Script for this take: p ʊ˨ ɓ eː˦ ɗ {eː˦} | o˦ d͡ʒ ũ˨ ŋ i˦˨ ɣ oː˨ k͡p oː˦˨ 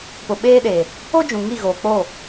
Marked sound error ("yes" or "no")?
yes